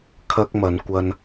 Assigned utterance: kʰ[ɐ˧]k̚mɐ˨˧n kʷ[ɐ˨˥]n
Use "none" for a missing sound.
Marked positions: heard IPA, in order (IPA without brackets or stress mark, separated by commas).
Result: ɐ˥, ɐ˧